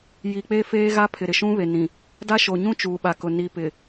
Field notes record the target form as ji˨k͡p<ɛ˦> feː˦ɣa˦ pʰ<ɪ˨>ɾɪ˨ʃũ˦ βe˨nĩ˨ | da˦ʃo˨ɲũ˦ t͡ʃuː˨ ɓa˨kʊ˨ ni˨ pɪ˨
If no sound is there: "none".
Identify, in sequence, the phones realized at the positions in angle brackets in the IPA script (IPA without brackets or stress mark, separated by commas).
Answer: e˦, ɪ˨